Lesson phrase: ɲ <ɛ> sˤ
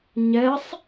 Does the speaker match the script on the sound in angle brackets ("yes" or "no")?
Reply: yes